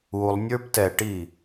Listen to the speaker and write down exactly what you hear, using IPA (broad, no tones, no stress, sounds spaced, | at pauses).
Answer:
u lˠ nʲ ə˞ p t ɛ ʈ i